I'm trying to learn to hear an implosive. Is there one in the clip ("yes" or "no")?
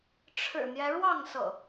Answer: no